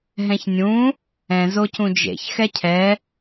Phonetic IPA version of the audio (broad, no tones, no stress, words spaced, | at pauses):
ɦɛ̃çnʲũ | ɛ̃ zocũd͡ʒḛç xɛcʰɛ